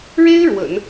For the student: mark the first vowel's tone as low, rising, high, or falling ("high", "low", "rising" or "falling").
high